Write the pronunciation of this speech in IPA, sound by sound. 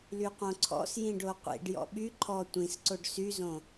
l y q õ ǀʰ ɔ̰ s j ĩ ɖ o qʷ ḭ ɖ j ɔ̰ ɓ y ǃʰ ɔ tʷ ĩ s ǀ o ɖ s y z õ

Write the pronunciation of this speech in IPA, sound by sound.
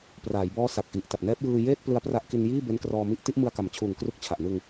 p r aː˩˦ j b ɔː˦˥ s a˨˩ k̚ ʔ i˨˩ ʔ t a˨˩ p̚ n ɛː˦˥ p̚ j ɯː˧ j eː˥˩ t̚ p l ɯ˧ a̯ p r a˦˥ ʔ k i˧ n j iː˥˩ b e˦˥ n k r ɔː˧ m i˦˥ ʔ t i˥˩ ʔ m ɯ˧ a̯ k a˩˦ m t͡ɕʰ uː˨˩ ŋ k r u˦˥ k̚ t͡ɕʰ a˨˩ ʔ n ɯ˧ ŋ

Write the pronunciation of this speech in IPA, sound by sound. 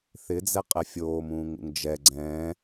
θ ɪ d͡z ɛ qʼ ɛ fʲ oː m ũː ŋ ṵ ŋ d͡ʒ ɛ ɡ͡ǀ ɛ̃

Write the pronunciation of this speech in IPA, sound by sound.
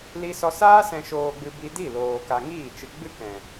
l i˧ s ɔ˧ s aː˦ s ɛ̃˨ ʃ oː˨ ɡ͡b ɨ˨ b i˧ d i˦˨ l oː˨ k a˧ ŋ iː˦˨ t͡ʃ ɨ˧ ɡ͡b ɨ˦ k ɛ̃˨

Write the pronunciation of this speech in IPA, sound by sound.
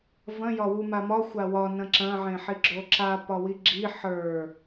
v ɐ̃ j ɒ w u m a m ɒ xʷ a w ɒ n ɐ̃ ǁ ɐ̃ ʕ ẽ ħ i ɡ͡ǁ o ǁ a p ɒ w i ɡ͡ǁ i ħ ə˞

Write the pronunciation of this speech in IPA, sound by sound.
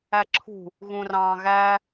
æ ǁʰ ṳ | ɣ ũ r ɑ̃ː ɣ æ

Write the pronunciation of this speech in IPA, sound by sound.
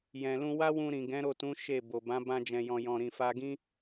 j ɛ̃˨ l ũ˧ w a˦ w ũ˧ ɾ ĩ˨ ɡ ɛ̃˨˦ ɾ o˦˨ t ũ˨˦ ʃ e˦˨ b o˨ b ã˨˦ b ã˧ d͡ʒ ɛ̃˨ j ɔ̃˨ j ɔ̃˨ ɾ ĩ˨ f a˧ ɡ ĩ˦

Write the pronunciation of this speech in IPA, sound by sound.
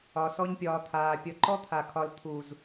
ɒ˨ s ɔ˧ ɲ pʲ ɒː˨ t̪ʰ aː˨ pʲ ʌ˧ ǃ ɔ˦ t̪ʰ a˨ kʰ ɒ˧ l t̪ʰ u˨ z

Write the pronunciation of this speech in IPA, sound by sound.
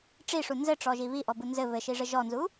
ʈ͡ʂ i ʂ u n z ɘ ʈ͡ʂ ɔ ʒ i β i ʔ ɔ b u n z ɘ β ɘ ʃ i ʐ ɘ ʒ ɔ n z u

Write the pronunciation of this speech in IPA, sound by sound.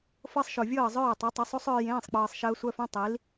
f ɤ˦˥ sˤ ʃ o˨˩ vʲ ɤː˥˩ zˤ œː˥˩ tˤ e˩˥ tˤ o˩˥ sˤ o˦˥ sˤ œː˧ j ẽː˧˥˧ sˤ k͡p ɤː˧ sˤ ʃ əː˦˥ sʷ œ˧˥˧ f œ̃˧˥˧ tˤ i˩˥ l

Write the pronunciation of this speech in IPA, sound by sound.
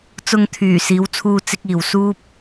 t͡s ʊ˨ ŋ t̪ʰ yː˨˩ s iː˨˥ w t͡sʰ uː˧ t͡s ɪ˥ k̚ iː˧ w s uː˥ p̚

